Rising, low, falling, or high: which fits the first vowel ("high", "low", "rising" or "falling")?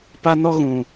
high